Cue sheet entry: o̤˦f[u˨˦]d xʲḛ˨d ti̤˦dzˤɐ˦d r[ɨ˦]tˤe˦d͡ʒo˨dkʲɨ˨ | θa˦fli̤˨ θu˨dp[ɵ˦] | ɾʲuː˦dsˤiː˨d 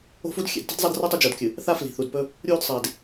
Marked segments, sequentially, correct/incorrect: incorrect, correct, correct

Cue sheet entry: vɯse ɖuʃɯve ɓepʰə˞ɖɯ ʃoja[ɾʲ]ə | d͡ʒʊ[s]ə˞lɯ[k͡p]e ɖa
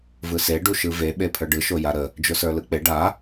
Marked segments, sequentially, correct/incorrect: incorrect, correct, correct

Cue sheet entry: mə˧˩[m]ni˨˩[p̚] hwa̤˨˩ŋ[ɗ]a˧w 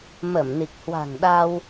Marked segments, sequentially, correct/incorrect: correct, incorrect, correct

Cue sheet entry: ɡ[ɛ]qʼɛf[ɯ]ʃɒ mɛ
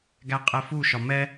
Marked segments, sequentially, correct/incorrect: incorrect, incorrect

